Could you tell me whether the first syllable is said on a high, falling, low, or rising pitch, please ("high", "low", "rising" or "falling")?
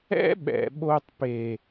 high